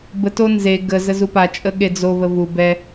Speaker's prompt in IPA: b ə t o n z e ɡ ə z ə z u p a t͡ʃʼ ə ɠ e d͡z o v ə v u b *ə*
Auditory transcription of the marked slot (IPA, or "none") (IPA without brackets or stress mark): ɛ